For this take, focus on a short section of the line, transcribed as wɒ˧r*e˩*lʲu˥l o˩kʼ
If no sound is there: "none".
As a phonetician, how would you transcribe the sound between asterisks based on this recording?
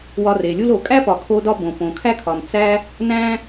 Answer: e˩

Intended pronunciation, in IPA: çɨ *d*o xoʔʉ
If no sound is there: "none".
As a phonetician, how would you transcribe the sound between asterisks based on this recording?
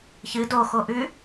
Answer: d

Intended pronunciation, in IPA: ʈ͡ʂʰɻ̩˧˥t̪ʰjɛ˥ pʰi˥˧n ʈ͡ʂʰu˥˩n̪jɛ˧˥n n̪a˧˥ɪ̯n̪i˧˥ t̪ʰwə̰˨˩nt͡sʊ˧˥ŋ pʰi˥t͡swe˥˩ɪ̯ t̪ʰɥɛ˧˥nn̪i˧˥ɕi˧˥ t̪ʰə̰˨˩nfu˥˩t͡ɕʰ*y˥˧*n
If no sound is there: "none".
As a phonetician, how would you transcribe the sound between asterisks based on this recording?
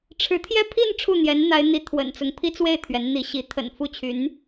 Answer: y˧˥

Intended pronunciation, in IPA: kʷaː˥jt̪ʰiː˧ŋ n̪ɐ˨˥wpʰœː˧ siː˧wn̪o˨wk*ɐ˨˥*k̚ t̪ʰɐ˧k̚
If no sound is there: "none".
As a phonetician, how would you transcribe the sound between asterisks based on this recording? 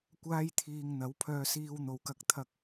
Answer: ɐ˧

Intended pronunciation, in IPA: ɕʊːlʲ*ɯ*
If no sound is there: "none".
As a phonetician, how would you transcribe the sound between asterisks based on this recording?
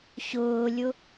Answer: ʊ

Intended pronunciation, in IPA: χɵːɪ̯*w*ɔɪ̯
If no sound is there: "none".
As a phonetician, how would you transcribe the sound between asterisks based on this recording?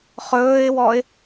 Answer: w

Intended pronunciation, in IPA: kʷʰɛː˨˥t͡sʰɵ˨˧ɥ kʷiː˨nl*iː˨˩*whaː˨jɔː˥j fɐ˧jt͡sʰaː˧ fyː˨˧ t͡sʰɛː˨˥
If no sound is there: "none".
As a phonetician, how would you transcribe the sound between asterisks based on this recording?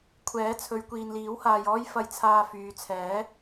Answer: iː˨˥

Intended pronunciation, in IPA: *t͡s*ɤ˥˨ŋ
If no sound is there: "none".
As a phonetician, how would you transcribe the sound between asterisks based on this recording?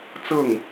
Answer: t͡s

